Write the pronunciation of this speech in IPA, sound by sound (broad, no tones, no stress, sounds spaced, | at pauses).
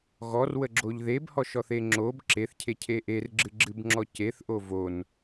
ɣ ɔ r w ə ɡ͡ǁ o ʎ ð e b h ɔ ʃ ɔ θ e ŋ͡ǁ o b ǁ e θ cʰ e cʰ e ʔ e r ɡ͡ǁ ɨ ɡ͡ǁ ɨ b ŋ͡ǁ ɔ c e θ ʔ o v o n